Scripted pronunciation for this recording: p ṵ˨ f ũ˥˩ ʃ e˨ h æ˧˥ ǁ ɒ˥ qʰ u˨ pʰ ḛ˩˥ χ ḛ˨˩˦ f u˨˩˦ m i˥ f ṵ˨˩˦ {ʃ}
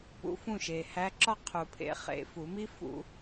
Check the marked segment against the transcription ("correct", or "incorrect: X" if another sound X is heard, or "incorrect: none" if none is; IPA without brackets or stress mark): incorrect: none